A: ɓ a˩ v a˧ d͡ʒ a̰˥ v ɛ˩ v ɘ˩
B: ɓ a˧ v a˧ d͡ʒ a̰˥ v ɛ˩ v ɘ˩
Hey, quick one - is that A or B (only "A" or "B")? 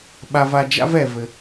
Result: B